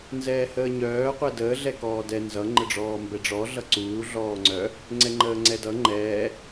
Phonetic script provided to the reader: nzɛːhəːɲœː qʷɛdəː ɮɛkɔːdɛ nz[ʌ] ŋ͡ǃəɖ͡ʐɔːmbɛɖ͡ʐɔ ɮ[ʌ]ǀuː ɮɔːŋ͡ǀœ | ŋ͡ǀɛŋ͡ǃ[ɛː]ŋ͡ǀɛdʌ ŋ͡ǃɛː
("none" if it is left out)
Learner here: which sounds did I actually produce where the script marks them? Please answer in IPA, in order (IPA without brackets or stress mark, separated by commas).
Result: ʌ, ʌ, əː